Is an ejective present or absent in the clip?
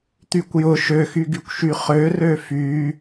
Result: absent